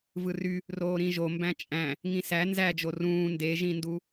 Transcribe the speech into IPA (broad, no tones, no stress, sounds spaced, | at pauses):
v ɯ r y | r oː ɾ ĩ ʒ o m b æ̃ t͡ʃʼ æ̃ | ŋ ĩ s æ n z æ d͡ʒ o r ũː n d e ʒ ĩ n d u